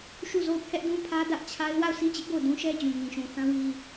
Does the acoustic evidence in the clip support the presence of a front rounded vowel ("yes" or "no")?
no